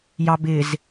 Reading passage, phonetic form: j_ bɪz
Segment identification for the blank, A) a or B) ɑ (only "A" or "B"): B